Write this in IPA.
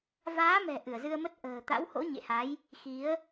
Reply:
vaː˨˦mɛ̤˨˩ ʔɨ˧˩ə̯zɨ˧ə̯mə˦˥t̚ ʔə̤ː˨˩ t̪a̰˧˥who̰˧˥ ɲḛ˧˨ha˨˦j | xi˨˦ə̯

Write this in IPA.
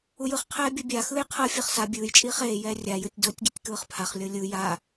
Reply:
ujɯχqʰɛː bʲobʲaxɯːj qʰɤfʲɤχ sa bʲɯːj t͡ʃʼiːχeːjɛː rʲajɯtʲ dotʲɡitʲ kɯːχpʰaχlʲɤ lʲɯ ja

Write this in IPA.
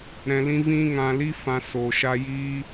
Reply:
ɾɛ̃˧lĩ˦vĩ˦ ŋã˧li˦ fã˧so˨ ʃa˧jiː˦

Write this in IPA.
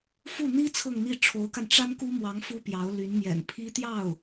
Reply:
fu˥˩ n̪i˥ t͡sʰɤ˥˧ŋn̪i˥˩ ʈ͡ʂʰo˧˥ʊ̯ka˧n ʈ͡ʂa˥nku˥mwɑ˧˥ŋ fu˥pjɑ˧˥ʊ̯ly˧˥n mjɛ̰˨˩npʰi˥t̪jɑ˥˩ʊ̯

